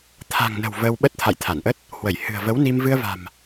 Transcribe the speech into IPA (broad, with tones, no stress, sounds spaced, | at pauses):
t̪ʰ a̤˨˩ ŋ n ə̤˨˩ w v əː˧ w ɓ ə˦˥ t̚ t̪ʰ a̰˧˨ j t̪ʰ a˧˩ n ʔ ə˦˥ t̚ | h w ə˧˩ j h ɨ̤˨˩ ə̯ v ə˨˦ w n i˧ m v ɨ˧ ə̯ v a̤˨˩ m